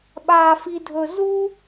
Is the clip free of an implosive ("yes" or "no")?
no